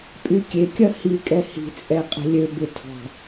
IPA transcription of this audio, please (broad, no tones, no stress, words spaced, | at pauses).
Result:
pʼykʲekʲɐ hikʼɛ hi̤t͡sʼɛ qʼə̤lʲøbɪ tʰɔ̤